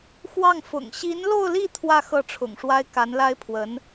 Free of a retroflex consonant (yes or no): no